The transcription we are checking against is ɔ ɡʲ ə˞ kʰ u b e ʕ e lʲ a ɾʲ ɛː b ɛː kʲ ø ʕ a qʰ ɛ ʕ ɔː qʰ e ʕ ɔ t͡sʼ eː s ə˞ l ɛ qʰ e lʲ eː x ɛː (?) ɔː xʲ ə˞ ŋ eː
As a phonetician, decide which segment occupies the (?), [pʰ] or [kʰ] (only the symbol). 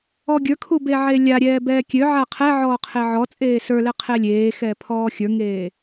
pʰ